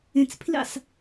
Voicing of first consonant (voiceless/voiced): voiceless